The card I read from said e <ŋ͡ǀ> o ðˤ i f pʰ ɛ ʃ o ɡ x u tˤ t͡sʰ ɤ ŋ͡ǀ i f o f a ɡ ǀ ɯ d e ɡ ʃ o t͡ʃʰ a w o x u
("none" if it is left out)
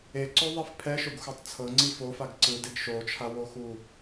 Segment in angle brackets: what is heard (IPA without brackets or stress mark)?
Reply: ǀ